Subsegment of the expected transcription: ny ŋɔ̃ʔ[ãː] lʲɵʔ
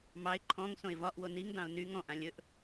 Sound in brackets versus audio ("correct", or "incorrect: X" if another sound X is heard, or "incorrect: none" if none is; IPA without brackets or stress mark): incorrect: ã